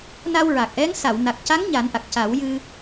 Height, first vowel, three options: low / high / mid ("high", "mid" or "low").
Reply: low